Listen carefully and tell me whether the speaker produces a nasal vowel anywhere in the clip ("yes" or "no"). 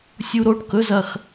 no